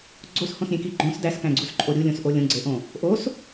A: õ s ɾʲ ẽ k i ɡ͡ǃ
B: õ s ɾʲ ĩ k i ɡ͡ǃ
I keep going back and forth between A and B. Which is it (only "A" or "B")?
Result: A